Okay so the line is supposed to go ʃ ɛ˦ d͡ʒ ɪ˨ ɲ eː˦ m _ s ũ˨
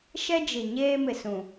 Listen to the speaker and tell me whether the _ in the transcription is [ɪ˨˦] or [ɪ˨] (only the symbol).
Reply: ɪ˨